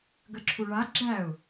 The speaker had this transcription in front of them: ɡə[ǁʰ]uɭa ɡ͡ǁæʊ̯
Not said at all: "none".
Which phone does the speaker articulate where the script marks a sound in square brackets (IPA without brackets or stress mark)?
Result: ǁʰ